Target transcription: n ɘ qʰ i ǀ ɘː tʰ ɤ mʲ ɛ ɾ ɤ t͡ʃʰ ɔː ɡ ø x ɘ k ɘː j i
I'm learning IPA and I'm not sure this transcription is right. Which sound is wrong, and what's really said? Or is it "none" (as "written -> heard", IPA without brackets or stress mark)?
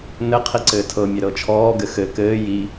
ø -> ɘ